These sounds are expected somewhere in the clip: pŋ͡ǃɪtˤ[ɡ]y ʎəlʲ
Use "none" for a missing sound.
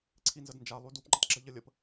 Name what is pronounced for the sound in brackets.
ɡ͡ǁ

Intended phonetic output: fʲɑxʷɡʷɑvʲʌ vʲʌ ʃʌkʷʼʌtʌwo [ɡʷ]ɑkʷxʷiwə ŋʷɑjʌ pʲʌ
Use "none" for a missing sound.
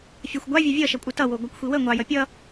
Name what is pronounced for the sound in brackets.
ɡʷ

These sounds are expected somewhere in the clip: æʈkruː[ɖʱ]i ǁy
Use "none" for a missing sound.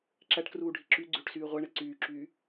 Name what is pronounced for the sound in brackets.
ɖʱ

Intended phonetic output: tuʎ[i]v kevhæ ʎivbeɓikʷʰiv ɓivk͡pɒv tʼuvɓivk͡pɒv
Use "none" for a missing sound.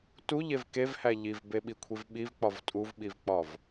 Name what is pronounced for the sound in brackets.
e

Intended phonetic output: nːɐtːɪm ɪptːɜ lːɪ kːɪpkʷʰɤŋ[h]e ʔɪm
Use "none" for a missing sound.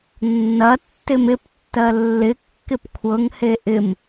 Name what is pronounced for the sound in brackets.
h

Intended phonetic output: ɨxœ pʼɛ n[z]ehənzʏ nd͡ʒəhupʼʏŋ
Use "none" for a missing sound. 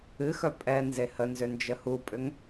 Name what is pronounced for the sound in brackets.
z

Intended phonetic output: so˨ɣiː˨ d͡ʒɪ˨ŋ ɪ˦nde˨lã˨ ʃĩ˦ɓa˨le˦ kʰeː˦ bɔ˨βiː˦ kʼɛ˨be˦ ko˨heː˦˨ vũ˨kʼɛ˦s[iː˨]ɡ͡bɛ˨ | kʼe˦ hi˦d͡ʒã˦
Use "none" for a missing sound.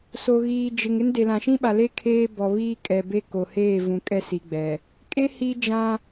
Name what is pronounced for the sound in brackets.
i˨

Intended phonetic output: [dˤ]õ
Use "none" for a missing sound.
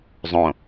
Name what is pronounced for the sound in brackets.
zˤ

